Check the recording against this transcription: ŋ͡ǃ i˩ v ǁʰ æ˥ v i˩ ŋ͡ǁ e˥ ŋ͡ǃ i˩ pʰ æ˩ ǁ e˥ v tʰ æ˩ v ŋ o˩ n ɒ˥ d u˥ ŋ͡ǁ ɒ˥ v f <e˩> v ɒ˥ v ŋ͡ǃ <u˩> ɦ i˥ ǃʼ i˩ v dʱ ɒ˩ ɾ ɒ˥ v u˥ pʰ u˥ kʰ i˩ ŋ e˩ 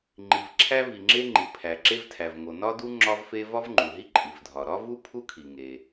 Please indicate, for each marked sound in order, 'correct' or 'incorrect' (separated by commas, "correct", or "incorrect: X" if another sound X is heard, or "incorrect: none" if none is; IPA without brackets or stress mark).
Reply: incorrect: e˥, correct